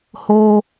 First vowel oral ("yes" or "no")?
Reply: yes